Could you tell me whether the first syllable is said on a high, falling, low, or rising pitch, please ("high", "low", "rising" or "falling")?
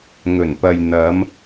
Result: low